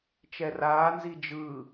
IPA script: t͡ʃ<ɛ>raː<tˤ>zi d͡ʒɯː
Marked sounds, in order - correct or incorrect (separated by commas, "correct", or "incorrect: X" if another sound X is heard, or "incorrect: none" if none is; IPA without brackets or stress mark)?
correct, incorrect: n